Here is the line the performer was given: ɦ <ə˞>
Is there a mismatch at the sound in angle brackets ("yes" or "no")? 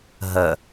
yes